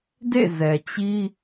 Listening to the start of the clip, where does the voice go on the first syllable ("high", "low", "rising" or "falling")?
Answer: falling